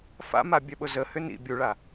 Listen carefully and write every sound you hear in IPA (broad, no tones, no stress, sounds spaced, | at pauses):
f a̰ m a bʲ œ ɓ ʊ z ə h ʏ n ḭ bʲ u ɭ a